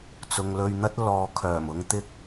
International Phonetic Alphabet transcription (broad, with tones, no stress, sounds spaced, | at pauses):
t͡s ʊ˨ ŋ l ɵ˧ ɥ n̪ ɐ˥ t̚ l ɔː˨ kʰ œː˨˩ m ʊ˨ ŋ t̪ ɪ˧ k̚